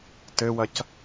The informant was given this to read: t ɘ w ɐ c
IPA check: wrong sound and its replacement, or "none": none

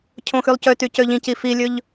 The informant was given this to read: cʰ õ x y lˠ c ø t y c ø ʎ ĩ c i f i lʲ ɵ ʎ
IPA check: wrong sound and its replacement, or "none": none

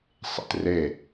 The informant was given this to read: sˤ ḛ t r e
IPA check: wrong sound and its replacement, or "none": none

